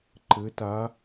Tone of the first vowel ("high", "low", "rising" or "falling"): rising